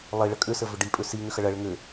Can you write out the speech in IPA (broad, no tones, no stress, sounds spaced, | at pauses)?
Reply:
lˠ i ɭ ə kʼ ʏ s ə v ʏ ɖ i pʼ ʏ s i ŋ ʏ x ɐ ɭ ɐ ɭ ɘ ŋ ɘ